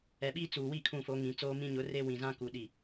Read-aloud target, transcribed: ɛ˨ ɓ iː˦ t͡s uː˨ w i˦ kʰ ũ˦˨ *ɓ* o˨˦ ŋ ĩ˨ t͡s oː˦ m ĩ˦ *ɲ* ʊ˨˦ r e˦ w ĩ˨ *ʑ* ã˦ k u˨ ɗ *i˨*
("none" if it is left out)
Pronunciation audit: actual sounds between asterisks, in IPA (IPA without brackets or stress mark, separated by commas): f, ɲ, z, i˨